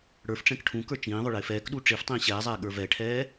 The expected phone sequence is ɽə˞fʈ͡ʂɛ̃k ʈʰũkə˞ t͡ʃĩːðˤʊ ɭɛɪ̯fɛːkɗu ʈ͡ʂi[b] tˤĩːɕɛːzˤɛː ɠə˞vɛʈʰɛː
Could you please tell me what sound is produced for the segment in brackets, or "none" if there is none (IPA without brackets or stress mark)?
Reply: f